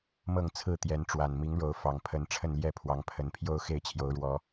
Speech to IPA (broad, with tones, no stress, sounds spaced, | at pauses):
m ɤ˥˨ ŋ t͡sʰ ɹ̩˥˨ t̪ j ɛ˨˦ n ʈ͡ʂ w a˨˩ n m i˨˦ ŋ ɻ o˨˦ ʊ̯ f ɑ˨˩ ŋ pʰ ə˨˦ n ʈ͡ʂʰ ə˥˨ n l j ɛ˥˨ pʰ w ɑ˨˦ ŋ pʰ ə˨˦ n pʰ j o˦ ʊ̯ x e˥˨ ɪ̯ t͡ɕʰ j o˨˦ ʊ̯ ɻ w ɔ˨˦